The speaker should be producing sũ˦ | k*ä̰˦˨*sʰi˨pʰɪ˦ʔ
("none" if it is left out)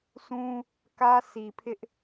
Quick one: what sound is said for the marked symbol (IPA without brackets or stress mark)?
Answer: ä˦